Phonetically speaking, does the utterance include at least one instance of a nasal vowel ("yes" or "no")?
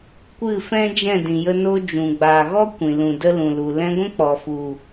yes